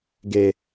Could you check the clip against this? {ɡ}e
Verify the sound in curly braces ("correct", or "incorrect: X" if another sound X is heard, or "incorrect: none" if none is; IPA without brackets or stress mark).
correct